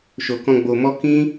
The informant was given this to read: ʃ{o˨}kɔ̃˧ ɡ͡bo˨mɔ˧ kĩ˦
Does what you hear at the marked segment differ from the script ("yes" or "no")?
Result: no